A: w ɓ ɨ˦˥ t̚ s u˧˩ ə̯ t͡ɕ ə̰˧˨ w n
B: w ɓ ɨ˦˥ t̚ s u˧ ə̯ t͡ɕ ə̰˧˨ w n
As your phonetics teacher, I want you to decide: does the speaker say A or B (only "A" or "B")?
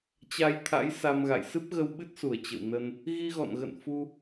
A